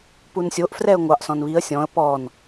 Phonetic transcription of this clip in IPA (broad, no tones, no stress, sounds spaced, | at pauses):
p u n sʲ o ʔ f r ɛ ə̯ ŋʷ ɑ ʔ s ɔ̃ n β i ə̯ sʲ ɔ̃ ə̯ p ɔ n